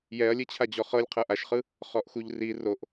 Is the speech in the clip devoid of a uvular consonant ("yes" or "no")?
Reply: no